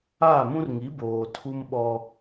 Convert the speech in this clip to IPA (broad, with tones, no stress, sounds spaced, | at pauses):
aː˦˨ m ũ˦ r ŋ i˨˦ b oː˨ tʰ u˦ m ɓ ɔ˦